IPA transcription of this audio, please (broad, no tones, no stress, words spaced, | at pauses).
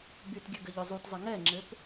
bytɡʲɘ ɡɘʎɵzˤutzˤɘ ŋɛŋ͡ǁɘp